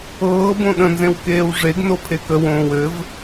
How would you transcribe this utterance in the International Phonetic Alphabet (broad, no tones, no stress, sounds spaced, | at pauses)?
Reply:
ɤː b õ ɗ ə̃ n z ẽ w k eː w ʐ e ɡ n o pʰ e k ə w õː w ɘ v